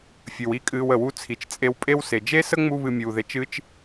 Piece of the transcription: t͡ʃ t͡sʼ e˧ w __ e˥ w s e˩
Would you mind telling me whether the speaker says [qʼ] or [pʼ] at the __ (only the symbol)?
pʼ